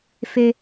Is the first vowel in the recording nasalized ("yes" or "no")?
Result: no